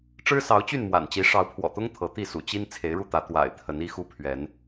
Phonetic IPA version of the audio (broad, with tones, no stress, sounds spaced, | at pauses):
ʈ͡ʂ ɻ̩˦ s ɑ˨˦ ʊ̯ t͡ɕ y˥˨ n m w a̰˨˩ n t͡ɕ i˨˦ ʂ ɑ˨˦ ʊ̯ pʰ w ɔ̰˨˩ t̪ ʊ˦ ŋ t̪ʰ ɤ˨˦ t̪ i˥˨ s ṵ˨˩ t͡ɕ i˦ n t͡sʰ e˨˦ ɪ̯ ɻ u˥˨ t̪ ä˨˦ t̪ w a̰˨˩ ɪ̯ t̪ʰ ə˨˦ n i˦ x u˦ pʰ ɥ ɛ˨˦ n